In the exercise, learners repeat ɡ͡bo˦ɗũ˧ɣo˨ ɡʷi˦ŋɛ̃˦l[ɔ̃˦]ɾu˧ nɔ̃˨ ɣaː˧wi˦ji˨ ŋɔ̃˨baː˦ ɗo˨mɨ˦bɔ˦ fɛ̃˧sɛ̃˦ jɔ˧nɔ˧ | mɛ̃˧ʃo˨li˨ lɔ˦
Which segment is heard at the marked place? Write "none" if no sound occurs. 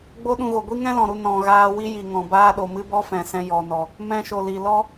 ɔ̃˨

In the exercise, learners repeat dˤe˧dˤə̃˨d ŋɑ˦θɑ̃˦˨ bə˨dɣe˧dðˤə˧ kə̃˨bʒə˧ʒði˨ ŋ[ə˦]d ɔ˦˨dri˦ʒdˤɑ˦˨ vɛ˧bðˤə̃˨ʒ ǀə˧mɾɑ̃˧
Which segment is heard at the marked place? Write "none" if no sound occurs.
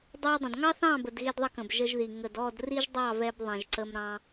ə˨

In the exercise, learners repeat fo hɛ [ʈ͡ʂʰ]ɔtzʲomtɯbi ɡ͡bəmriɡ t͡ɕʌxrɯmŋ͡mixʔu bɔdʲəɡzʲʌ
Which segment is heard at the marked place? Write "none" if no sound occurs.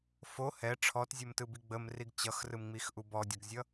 ʈ͡ʂʰ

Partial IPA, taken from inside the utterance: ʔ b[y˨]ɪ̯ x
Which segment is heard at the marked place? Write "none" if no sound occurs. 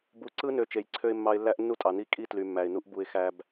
u˨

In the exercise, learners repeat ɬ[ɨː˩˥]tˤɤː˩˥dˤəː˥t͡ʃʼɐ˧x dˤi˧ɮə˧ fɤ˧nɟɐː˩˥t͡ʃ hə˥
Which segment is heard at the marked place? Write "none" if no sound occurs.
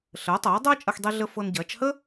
əː˩˥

